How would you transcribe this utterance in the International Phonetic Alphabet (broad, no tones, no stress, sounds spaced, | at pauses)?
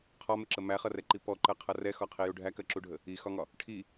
qʰ ɒ m ɪ ǁ ə m æ χ ʌ r ɛ ǃ i p ɔ ǃ ɜ qʰ ʌ r ɛ x ɒ qʰ i j u ɖʱ æ k ɜ ǁ u ɖʱ ə | i x ɒ ŋ ɒ | ʈʰ i